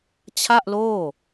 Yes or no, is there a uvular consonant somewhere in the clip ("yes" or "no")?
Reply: no